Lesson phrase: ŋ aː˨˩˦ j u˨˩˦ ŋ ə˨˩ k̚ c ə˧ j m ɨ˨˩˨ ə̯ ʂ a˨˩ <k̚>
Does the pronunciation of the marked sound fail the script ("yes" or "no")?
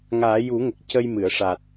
yes